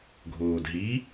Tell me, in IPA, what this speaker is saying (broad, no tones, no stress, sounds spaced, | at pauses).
ɡʱ oː d ɦ i